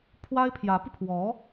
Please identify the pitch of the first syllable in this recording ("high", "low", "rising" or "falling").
high